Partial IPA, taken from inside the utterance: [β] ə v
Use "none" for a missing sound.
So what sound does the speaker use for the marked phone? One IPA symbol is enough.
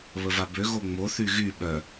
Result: β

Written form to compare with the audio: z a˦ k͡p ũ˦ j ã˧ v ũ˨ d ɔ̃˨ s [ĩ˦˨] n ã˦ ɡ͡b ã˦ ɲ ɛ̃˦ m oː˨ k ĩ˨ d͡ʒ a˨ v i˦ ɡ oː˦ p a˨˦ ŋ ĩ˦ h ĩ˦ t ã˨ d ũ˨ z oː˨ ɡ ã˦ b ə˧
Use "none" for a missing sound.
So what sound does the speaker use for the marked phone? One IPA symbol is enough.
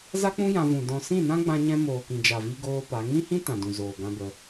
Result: ĩ˦˨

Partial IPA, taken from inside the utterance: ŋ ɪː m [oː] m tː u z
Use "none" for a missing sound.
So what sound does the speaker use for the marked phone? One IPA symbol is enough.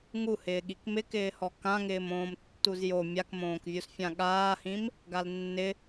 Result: õː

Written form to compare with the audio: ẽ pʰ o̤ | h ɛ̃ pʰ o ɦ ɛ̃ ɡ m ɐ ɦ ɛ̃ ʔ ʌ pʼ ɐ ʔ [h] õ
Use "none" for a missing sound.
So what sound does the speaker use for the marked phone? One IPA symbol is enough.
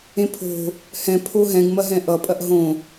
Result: ɦ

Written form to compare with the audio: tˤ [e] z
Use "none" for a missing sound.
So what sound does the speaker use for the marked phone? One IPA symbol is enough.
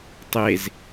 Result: e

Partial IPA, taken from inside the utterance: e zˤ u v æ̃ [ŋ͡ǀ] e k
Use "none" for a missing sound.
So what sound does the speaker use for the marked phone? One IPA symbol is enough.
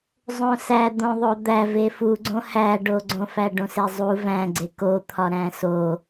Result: ɡ͡ǀ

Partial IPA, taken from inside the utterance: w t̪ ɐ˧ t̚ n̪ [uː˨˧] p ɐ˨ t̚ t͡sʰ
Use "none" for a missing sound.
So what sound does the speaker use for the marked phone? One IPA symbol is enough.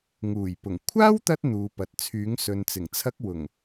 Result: uː˨˧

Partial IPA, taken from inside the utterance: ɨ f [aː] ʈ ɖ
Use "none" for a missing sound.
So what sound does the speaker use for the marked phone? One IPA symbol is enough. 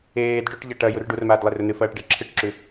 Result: ɐː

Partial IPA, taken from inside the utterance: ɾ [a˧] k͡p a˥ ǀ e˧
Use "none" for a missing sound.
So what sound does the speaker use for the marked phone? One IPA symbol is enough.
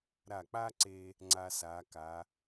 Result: a˧˩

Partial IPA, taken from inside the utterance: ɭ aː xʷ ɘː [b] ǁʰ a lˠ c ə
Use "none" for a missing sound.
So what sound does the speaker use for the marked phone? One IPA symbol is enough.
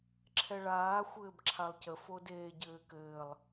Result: b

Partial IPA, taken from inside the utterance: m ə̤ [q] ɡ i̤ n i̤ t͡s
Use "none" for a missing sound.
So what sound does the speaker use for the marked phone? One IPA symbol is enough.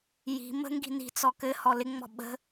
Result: ŋ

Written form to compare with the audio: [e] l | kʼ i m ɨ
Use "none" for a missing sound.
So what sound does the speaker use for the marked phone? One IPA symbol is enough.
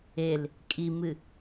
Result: e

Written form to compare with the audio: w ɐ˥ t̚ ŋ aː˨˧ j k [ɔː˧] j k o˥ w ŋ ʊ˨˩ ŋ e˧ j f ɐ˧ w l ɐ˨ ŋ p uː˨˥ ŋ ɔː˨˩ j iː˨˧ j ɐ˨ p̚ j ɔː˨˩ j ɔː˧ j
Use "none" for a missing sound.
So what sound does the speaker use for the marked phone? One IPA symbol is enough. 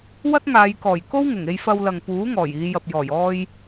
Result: ɔː˨˩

